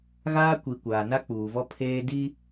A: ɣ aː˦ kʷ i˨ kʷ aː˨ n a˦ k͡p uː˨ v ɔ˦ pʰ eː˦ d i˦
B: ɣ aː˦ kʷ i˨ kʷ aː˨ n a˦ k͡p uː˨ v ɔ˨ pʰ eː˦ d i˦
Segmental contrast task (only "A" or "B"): A